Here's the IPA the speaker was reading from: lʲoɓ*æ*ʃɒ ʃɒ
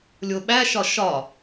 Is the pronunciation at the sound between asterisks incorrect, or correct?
correct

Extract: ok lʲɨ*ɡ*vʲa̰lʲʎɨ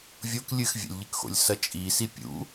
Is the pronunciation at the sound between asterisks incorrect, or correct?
incorrect: x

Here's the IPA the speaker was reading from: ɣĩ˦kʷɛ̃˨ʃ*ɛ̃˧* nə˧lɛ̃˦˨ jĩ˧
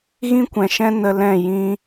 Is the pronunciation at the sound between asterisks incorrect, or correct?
incorrect: ɛ̃˦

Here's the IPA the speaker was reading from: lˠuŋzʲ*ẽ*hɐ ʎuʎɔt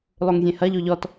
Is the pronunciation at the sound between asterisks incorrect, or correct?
correct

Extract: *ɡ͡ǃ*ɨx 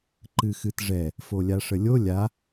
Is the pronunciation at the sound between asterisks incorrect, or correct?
incorrect: ǃ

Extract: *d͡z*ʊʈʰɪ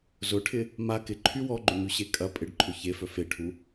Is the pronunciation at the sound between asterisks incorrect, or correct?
incorrect: z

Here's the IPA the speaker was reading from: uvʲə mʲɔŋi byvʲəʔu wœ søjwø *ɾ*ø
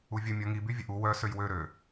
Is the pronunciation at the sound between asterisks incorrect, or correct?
correct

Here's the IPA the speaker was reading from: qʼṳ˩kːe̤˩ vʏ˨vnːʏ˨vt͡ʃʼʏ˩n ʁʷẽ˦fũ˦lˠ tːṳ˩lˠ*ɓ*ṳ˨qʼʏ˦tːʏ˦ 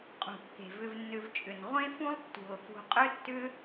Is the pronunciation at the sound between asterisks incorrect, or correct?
incorrect: f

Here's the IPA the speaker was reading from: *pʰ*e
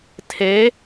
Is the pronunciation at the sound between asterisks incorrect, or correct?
incorrect: tʰ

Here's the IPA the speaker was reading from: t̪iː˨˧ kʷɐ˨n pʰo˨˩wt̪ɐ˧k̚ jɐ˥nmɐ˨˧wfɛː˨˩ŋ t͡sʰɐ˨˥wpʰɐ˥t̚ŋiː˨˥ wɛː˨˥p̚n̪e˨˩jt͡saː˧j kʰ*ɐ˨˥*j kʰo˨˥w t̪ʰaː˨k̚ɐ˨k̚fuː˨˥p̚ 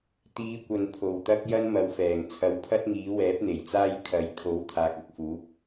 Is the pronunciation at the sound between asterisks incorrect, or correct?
correct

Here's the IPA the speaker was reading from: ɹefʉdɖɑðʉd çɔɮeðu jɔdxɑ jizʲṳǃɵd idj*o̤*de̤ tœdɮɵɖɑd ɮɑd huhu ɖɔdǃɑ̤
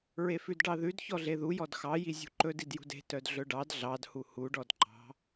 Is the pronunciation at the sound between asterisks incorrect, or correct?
incorrect: ṳ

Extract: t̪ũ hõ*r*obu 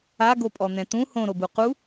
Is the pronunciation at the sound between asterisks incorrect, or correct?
incorrect: ɾ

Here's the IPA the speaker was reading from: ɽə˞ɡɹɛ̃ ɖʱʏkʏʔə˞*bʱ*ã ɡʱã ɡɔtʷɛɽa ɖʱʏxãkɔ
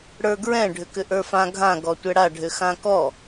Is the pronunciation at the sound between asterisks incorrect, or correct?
incorrect: f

